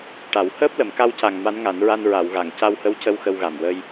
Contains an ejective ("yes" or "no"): no